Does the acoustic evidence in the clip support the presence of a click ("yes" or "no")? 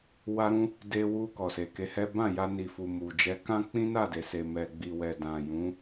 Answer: no